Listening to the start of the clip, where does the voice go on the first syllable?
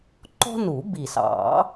high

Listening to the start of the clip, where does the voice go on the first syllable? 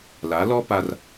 rising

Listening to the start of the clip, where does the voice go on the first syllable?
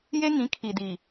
high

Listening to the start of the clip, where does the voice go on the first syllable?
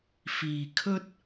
low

